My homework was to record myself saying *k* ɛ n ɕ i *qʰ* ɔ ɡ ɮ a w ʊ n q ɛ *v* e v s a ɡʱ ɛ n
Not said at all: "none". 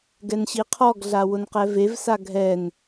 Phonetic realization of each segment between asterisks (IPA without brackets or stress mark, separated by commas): ɡ, qʰ, v